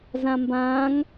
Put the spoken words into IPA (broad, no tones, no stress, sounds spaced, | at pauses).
z ã m b ãː ŋ